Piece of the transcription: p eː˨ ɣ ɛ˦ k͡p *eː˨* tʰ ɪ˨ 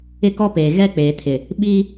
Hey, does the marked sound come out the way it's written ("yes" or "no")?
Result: yes